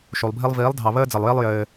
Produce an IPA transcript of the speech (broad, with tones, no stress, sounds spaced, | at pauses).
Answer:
ʃ u˨ lˠ bʱ i˦ lˠ v iː˨˦ lˠ dʱ ɑ˨ β əː˦ d͡z ɘ˨ lˠ j i˦ lˠ j ɘː˧